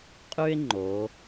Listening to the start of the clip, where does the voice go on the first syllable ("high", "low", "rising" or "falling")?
high